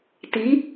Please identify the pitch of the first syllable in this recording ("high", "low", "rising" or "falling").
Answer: rising